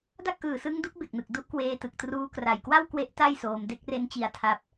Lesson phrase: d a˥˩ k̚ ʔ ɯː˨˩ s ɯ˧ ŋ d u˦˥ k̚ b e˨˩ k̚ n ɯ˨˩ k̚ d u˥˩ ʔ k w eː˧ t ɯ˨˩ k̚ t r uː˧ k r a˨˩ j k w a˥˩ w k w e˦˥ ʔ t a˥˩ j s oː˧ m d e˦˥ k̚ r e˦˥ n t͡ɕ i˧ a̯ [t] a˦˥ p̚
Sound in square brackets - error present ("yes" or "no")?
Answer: yes